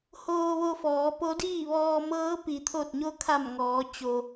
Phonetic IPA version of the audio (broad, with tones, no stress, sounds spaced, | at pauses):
h oː˧ ʋ o˧ f ɔː˩˧ p o˧˥ d iː˥˨ ʋ ɔː˧ m ɤː˧˥ p i˩˧ t̪ʰ o˧˩ t̚ ɲ o˧ kʰ a˧˩ m ŋ ɔː˩˧ t͡ɕ o˩